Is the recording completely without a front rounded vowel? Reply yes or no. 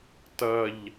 yes